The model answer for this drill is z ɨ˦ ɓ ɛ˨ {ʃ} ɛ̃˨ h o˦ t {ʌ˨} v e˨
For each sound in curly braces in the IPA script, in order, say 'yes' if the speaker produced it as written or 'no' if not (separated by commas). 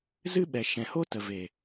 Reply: yes, no